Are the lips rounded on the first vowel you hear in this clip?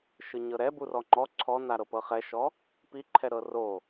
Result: no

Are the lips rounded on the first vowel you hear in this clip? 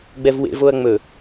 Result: no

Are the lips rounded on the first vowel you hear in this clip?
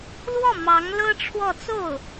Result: yes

